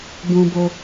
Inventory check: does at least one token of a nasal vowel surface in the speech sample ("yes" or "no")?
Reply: yes